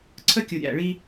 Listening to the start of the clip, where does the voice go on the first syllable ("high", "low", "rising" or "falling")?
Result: high